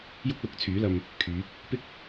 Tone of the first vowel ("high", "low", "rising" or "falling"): high